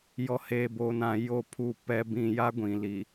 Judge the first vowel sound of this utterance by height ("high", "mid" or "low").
mid